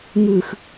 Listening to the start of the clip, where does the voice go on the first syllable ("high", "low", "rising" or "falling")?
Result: low